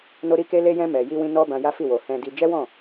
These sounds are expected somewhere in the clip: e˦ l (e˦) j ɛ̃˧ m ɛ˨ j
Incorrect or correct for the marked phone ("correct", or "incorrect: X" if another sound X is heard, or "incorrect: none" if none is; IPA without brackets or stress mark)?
incorrect: e˧